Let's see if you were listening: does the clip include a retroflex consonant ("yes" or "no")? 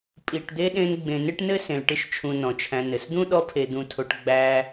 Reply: yes